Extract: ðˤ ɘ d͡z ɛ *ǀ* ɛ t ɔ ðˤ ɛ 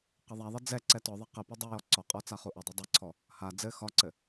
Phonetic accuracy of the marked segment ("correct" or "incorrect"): correct